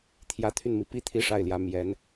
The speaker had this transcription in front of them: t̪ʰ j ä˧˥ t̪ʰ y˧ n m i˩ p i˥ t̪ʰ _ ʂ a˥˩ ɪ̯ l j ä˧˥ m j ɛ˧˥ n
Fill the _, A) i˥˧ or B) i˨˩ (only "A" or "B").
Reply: A